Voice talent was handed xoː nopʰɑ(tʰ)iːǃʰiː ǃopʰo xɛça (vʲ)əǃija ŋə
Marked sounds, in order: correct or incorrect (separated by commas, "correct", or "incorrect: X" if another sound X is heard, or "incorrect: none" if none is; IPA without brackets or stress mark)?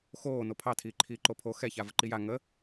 correct, incorrect: v